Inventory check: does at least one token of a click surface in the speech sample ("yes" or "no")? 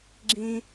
yes